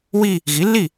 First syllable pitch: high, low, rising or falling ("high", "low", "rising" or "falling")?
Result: falling